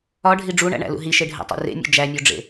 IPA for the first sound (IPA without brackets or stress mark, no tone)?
ɒ